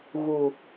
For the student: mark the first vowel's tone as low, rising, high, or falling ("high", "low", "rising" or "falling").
low